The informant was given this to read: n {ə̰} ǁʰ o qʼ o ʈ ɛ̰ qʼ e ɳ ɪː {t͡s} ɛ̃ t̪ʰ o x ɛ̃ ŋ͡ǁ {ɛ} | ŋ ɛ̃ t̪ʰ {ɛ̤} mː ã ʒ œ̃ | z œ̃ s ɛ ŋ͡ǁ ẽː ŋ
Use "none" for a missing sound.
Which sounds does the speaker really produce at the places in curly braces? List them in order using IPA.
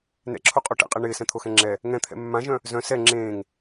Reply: ɛ̰, s, ɛ, ɛ̰

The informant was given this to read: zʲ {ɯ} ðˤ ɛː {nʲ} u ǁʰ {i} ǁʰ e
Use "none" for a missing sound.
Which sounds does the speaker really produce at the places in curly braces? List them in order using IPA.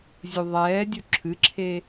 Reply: u, dʲ, ɨ

